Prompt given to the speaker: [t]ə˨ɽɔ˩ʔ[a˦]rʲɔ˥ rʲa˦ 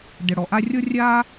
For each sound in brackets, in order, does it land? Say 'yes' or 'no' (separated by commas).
no, yes